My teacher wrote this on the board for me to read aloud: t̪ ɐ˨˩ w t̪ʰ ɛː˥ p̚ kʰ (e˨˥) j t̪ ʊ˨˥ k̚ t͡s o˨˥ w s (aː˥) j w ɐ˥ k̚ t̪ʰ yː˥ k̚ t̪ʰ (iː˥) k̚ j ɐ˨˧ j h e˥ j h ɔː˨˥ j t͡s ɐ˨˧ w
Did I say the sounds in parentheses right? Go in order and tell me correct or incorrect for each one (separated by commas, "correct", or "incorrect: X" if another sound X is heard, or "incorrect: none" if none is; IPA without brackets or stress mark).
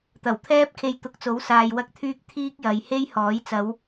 incorrect: e˧, incorrect: aː˨, correct